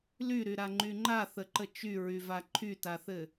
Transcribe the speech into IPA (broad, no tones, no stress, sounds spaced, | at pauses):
l y ɾ y ɾ a ŋ͡ǃ y ŋ͡ǃ a θ ə ǃ ə t͡ʃ y ɹ y v a ǃʰ y t a θ ɘ